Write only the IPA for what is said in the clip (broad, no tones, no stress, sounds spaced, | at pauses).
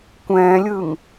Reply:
kʷ ɛ̃ː lʲ ɯː ŋ